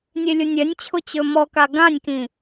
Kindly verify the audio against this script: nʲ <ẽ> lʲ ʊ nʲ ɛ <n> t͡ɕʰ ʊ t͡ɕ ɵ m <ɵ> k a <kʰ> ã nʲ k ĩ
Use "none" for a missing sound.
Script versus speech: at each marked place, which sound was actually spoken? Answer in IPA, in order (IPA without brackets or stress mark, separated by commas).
e, nʲ, ɔ, ɡ